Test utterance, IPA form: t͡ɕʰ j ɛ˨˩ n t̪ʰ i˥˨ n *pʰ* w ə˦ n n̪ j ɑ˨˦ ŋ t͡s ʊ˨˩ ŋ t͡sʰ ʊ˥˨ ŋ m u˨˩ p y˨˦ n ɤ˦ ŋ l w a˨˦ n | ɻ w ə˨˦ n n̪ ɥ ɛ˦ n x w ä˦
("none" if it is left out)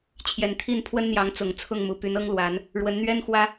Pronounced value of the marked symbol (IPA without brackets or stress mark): pʰ